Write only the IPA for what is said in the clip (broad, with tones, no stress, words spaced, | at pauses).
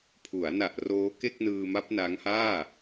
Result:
pʰu˩˦a̯na˨˩ʔ roː˦˥ke˥˩k̚nɯː˧ma˦˥p̚ na˦˥ŋhaː˥˩